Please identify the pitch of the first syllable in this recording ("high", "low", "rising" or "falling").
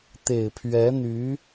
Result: low